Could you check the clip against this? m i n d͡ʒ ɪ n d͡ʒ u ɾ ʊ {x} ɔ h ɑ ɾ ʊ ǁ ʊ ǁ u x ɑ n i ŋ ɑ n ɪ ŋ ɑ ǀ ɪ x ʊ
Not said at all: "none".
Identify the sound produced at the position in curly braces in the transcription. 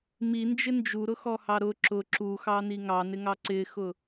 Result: x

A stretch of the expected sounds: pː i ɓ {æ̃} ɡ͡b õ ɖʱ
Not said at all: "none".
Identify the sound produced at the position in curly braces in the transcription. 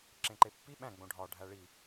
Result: æ̃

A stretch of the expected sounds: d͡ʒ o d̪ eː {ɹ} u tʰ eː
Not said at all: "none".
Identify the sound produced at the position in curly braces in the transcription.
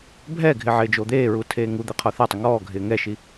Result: ɹ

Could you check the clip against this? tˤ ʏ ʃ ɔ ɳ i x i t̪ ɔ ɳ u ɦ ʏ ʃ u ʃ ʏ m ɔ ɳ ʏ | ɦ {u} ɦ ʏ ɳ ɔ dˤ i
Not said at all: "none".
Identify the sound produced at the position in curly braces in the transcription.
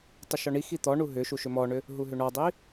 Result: u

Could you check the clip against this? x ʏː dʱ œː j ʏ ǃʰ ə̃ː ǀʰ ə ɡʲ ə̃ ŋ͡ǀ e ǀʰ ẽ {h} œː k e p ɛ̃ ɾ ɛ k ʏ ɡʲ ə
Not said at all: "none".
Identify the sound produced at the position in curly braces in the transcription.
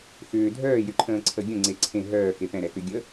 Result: ɦ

